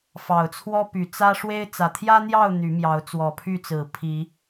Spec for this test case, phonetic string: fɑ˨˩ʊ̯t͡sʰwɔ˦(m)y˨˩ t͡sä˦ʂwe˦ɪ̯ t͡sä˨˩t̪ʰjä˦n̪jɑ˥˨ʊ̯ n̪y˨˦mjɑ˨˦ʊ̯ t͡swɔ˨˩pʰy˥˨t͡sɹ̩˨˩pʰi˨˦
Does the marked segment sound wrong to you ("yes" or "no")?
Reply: yes